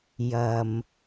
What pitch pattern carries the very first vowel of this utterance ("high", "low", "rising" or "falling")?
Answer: low